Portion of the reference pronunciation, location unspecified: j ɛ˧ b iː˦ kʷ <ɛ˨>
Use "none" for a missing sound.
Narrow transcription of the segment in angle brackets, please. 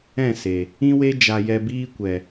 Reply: ɛ˨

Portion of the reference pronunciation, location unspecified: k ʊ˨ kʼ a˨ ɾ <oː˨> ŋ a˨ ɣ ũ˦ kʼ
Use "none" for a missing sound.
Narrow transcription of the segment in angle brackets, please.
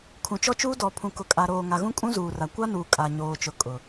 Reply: oː˨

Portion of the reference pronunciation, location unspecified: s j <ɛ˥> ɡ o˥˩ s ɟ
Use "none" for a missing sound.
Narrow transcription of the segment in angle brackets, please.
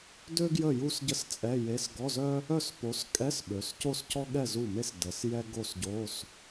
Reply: ɛ˥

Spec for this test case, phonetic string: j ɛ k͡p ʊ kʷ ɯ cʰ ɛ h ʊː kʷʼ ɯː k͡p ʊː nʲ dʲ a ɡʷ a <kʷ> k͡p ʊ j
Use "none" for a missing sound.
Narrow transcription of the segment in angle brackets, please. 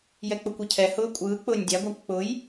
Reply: kʷ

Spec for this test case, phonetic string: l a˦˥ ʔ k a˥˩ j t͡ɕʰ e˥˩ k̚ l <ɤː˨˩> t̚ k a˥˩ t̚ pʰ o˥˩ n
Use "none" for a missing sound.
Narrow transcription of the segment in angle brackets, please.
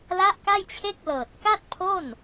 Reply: ɤː˨˩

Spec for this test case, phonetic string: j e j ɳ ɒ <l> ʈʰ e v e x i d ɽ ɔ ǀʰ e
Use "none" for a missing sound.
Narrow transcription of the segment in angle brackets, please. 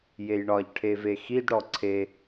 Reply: ʎ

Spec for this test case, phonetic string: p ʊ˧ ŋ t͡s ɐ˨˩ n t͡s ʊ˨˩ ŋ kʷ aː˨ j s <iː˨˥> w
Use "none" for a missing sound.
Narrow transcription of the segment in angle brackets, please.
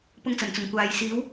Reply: iː˨˥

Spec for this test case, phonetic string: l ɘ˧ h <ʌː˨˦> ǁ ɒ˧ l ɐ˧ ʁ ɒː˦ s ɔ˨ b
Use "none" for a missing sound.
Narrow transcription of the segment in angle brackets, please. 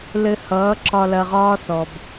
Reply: ʌː˨˦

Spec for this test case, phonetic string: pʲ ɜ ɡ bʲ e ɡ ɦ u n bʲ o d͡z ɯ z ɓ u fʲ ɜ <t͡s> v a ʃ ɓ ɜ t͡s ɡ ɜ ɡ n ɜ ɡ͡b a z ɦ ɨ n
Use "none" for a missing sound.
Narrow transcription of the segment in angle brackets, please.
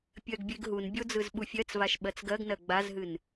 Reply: t͡s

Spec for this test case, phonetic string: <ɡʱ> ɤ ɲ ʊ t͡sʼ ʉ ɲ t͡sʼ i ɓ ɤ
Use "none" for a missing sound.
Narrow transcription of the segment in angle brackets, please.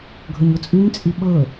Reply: ɡʱ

